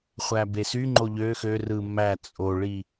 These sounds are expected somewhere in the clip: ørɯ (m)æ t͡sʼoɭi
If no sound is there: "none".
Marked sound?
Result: m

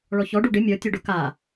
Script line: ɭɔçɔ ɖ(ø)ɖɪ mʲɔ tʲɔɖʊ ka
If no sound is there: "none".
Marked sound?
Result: u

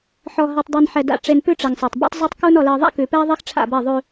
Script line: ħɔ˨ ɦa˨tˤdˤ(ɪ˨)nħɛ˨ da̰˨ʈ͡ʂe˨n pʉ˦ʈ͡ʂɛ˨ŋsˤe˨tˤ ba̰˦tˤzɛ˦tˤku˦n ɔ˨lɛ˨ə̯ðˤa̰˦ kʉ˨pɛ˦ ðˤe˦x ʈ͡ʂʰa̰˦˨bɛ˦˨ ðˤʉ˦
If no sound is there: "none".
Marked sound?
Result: ɛ˨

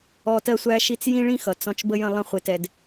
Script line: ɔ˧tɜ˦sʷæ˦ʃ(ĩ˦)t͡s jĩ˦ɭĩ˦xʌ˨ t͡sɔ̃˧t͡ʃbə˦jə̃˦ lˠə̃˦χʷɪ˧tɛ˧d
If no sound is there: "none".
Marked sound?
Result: i˦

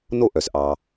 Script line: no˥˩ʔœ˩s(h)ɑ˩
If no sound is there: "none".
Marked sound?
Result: ʔ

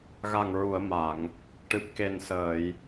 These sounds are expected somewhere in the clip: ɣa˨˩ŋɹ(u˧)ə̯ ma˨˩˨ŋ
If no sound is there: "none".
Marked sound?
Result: u˨˩˨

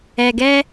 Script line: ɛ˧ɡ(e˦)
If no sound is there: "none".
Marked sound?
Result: ɛ˦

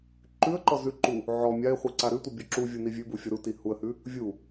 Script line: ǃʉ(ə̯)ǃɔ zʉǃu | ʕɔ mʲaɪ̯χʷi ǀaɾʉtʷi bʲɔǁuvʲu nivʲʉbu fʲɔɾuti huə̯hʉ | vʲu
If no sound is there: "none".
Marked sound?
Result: ə̯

